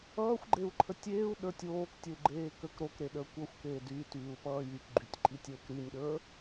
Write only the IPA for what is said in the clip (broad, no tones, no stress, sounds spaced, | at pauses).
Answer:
ʌː xʷ ɡ͡ǃ e u̯ ǃʰ ə tʲ eː u̯ ɗ ə˞ tʲ oː k tʲ ə u̯ ɡ͡ǃ eː k ə k ɾ o k ɾ e ɗ əː kʷ ʌ xʷ k eː d y t yː u̯ p ʌː j y k ɡ͡ǃ y tʲ ǃʼ i tʲ əː k ɾ y nʲ ɗ ə˞